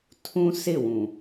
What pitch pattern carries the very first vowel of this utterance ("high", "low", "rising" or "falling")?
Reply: high